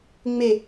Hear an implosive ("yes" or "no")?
no